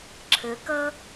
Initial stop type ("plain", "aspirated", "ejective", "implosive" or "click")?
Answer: click